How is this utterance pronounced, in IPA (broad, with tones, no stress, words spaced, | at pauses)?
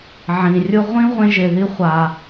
ʕĩ˩rʲʊ˦ʁʷĩ˥ ʁʷẽ˥ʒe˨ði˥ χʷa˨